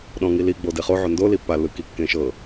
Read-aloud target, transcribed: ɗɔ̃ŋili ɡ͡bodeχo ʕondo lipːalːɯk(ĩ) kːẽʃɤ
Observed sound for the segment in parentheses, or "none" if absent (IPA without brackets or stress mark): i